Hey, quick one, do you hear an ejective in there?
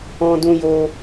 no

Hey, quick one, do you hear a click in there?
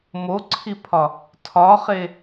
yes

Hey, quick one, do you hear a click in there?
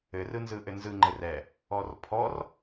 yes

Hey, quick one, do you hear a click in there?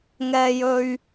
no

